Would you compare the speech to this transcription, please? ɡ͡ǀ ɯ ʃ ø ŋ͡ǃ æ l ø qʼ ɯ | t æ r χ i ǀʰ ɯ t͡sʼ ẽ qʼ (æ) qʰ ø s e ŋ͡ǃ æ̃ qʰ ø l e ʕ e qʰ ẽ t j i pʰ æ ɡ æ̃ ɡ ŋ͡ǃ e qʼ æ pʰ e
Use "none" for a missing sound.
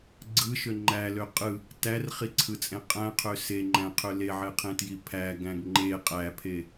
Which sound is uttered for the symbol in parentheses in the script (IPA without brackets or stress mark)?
æ̃